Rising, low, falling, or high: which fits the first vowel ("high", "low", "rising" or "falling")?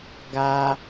high